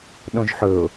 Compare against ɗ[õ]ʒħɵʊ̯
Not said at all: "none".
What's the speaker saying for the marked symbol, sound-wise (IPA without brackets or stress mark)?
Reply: õ